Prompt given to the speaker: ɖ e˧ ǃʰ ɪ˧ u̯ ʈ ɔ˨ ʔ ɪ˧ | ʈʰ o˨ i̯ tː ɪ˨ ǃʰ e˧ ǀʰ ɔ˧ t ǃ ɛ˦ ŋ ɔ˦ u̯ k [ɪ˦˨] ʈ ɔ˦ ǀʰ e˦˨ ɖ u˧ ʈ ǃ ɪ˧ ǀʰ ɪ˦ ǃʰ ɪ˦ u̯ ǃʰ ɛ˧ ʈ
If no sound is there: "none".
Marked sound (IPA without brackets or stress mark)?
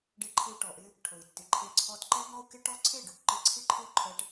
ɪ˦